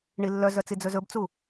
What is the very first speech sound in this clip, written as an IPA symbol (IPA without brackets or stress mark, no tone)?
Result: ɳ